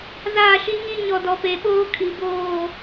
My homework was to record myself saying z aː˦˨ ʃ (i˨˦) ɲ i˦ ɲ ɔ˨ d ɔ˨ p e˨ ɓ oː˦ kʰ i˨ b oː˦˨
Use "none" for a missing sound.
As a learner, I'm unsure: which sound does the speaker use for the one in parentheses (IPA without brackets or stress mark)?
i˦